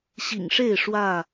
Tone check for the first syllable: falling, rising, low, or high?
low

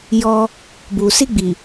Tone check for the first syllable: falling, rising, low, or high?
high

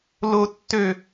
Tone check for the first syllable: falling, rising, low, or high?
high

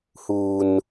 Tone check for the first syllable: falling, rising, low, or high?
low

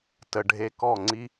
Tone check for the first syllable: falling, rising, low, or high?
low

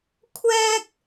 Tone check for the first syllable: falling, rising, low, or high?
high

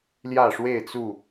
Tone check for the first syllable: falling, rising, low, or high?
falling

